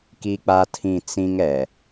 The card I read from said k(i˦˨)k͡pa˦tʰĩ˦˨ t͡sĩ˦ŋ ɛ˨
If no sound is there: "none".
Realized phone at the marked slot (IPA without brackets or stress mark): i˦